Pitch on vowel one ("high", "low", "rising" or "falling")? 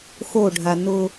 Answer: falling